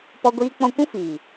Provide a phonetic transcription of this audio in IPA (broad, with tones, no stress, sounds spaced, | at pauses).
p ɔ˦ ɡʷ iː˦ k͡p ɔ̃˦ kʷ ũ˦ f iː˨